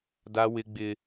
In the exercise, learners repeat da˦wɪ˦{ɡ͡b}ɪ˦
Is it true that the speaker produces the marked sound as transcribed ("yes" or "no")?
yes